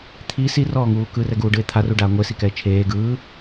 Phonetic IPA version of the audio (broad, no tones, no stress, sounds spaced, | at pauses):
t̪ʰ i s i r ɔː ŋ uː k ɯ r ɛ ɡ uː ɖ ɯ e̯ t̪ʰ a r u ɖ aː ŋʷ e s i k ɛ e̯ t͡ʃʰ eː ɡ ɯː